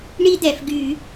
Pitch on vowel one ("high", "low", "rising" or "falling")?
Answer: high